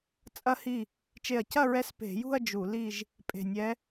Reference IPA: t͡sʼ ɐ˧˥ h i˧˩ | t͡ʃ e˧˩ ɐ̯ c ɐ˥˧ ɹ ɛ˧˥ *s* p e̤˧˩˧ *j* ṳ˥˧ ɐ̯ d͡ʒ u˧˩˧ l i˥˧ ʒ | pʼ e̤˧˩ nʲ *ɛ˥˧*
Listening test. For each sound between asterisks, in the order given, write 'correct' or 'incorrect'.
correct, correct, incorrect

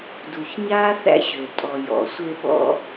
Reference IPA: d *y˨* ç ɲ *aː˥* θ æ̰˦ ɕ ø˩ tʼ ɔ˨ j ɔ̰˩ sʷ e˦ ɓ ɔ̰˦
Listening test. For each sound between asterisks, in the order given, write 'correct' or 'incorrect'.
incorrect, correct

